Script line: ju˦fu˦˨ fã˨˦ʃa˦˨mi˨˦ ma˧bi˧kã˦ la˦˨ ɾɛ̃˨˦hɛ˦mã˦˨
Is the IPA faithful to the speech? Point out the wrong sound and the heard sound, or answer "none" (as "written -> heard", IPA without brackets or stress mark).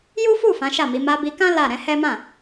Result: none